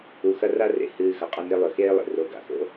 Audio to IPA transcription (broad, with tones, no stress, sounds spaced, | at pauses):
u˩ x ɐ˧ r a˧ r ḛ˩ h ɨː˩ x ɐ˩ qʼ ɐ˧ n e˧ lˠ ɵ˩ x eː˧ lˠ ḛ˩ r o˩ ɡ a̰˩ x o̰˥